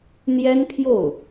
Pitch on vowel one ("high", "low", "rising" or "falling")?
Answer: high